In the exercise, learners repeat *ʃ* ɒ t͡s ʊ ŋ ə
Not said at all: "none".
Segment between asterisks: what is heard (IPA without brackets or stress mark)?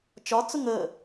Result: t͡ʃ